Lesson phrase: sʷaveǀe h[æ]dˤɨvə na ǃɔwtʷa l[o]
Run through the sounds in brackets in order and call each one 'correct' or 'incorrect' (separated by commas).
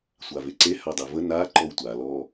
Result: incorrect, incorrect